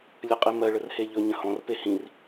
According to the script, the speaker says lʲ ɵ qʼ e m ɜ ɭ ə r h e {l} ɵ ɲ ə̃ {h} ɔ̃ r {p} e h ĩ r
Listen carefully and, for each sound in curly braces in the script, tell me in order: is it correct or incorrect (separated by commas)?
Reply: incorrect, correct, correct